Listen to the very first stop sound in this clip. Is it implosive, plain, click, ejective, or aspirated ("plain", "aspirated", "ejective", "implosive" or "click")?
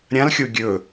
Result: plain